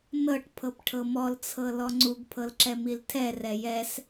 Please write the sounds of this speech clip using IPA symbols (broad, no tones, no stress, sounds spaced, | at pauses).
n ɤ ʈ pʰ ɤ p ʈʰ ɤ m ɔ l t͡sʰ ɤ l ɔ ŋ͡ǀ u ɡ pʰ ɤ l ǁ ɛ m i l tʰ ɛ r ɛ j ɛ s